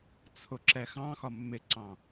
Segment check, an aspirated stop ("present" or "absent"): present